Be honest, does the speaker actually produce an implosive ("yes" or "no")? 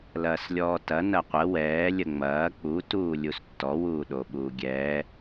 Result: yes